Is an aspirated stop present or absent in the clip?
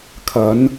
present